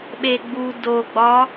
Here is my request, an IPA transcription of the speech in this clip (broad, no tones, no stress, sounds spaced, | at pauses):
ɓ e ɡ͡b u d o ɡ͡b ɒ